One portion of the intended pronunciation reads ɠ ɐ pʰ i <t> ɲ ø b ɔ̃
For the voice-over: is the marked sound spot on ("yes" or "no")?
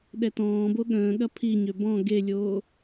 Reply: no